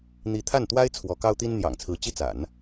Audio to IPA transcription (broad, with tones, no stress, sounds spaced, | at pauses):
n̪ i˧˥ t̪ʰ a˥˩ n t̪ w a˥ ɪ̯ t͡sʰ w ɔ˧˥ k ɑ˥ ʊ̯ t̪ i˥ n n̪ j ɑ̰˨˩ ŋ t͡sʰ ɹ̩˧˥ t͡ɕ i˥˩ t͡s a̰˨˩˦ n